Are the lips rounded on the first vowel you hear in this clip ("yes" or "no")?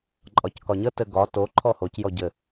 yes